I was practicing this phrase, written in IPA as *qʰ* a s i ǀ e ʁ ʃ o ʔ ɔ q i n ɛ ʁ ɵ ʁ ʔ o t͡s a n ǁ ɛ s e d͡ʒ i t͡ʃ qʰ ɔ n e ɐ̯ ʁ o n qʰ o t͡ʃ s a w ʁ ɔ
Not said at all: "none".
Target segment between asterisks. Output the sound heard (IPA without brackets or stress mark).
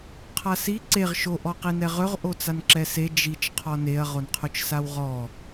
qʰ